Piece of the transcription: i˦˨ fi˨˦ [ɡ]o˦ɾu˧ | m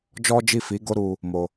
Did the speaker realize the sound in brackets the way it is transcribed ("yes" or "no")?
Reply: yes